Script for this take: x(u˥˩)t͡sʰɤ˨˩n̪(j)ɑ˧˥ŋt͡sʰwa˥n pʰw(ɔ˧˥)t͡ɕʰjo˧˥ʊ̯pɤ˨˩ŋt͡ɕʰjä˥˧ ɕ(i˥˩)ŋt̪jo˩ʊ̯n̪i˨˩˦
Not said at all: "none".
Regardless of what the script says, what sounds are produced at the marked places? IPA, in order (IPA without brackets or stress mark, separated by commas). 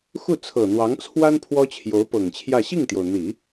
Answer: u˥˩, w, ɔ˥, i˥˩